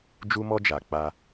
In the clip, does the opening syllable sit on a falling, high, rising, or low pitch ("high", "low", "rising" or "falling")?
high